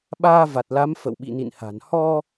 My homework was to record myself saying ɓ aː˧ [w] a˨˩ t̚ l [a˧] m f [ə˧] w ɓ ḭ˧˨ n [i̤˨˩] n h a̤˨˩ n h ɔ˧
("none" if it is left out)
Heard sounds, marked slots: v, a˨˦, ə̰˧˨, ḭ˧˨

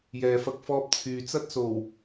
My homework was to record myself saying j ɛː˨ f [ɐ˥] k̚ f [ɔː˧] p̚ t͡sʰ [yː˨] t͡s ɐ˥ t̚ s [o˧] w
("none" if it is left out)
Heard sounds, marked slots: ɐ˧, ɔː˧, yː˨, o˨˩

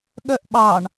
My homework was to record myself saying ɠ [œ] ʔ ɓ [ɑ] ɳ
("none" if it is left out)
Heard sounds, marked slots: œ, ɑ

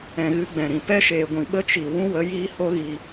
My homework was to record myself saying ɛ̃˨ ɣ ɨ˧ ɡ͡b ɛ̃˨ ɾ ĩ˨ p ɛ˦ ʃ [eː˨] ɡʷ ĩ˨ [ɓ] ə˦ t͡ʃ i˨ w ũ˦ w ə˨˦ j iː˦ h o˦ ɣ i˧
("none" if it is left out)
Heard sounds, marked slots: eː˨, ɓ

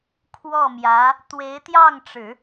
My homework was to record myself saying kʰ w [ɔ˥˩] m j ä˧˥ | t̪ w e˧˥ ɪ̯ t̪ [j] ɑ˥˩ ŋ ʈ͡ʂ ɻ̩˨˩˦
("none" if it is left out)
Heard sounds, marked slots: ɔ˥˩, j

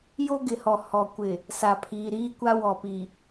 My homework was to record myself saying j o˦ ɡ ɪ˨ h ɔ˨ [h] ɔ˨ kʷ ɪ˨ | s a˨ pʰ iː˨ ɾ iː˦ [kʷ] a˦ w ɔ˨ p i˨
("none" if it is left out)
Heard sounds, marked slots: h, kʷ

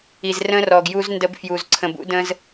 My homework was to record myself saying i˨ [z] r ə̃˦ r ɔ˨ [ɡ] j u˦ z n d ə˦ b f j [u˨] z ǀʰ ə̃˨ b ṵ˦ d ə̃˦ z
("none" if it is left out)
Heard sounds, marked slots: z, ɡ, u˨

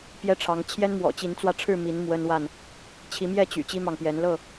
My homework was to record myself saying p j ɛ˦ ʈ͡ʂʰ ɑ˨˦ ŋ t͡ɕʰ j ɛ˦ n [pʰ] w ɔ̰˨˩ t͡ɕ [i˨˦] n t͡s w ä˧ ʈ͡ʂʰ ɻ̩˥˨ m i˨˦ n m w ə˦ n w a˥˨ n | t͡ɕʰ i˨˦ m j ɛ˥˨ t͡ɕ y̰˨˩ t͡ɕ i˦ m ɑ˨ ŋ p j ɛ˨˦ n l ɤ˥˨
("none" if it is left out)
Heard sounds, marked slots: m, i˨˦

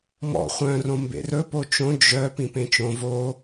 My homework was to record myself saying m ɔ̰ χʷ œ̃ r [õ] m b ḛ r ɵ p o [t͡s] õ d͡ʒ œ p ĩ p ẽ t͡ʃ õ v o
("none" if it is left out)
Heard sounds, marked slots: õ, t͡ʃ

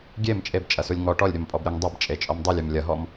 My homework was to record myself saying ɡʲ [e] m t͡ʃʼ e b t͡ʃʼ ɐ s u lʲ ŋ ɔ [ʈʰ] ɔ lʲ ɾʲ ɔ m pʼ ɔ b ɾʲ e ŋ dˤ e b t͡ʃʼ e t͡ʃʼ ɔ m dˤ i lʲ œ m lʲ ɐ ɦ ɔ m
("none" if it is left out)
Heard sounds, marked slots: e, ʈ

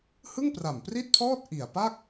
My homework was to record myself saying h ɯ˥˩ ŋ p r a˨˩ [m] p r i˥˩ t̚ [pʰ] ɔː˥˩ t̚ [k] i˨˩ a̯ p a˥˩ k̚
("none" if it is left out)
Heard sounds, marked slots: m, pʰ, ʔ

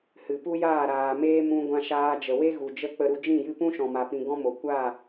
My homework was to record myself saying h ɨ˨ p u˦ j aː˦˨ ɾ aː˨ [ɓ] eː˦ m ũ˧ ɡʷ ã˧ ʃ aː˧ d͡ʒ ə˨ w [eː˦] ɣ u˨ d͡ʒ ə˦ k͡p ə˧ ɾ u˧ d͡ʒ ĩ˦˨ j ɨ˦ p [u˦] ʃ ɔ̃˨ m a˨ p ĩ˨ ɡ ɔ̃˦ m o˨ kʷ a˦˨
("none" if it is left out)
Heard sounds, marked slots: m, e˦, ũ˦

